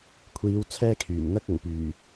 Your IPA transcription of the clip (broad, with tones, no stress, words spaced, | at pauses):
kʷʰiː˨˧w t͡sʰɛː˥kʰyː˨˩m n̪ɐ˥k̚ʊ˨˩ŋ pyː˨˩